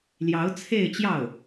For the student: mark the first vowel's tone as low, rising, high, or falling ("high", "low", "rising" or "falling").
rising